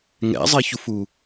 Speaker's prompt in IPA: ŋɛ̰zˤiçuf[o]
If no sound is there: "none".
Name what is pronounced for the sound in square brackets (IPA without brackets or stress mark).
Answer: u